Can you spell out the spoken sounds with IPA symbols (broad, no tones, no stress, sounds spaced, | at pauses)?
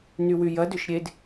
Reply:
n y w y j ɐ d ʏ ʃ ɾʲ e d